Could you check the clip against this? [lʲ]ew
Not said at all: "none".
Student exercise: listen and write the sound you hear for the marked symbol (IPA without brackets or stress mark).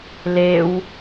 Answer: l